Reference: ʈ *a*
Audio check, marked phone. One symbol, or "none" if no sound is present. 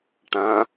ã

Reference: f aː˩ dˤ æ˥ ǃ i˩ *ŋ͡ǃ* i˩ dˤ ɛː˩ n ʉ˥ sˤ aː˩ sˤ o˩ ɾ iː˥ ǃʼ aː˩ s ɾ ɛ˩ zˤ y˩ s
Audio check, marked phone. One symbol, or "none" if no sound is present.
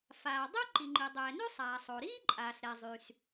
ŋ͡ǃ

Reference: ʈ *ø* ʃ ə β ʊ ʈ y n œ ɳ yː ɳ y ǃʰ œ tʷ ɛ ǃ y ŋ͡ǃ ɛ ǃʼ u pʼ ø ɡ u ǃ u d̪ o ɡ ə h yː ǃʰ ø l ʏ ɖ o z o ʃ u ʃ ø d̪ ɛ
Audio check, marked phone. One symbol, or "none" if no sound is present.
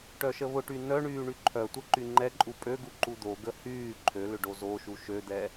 œ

